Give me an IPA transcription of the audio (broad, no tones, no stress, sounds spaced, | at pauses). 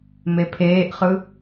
m e pʰ eː ʔ χ ɯ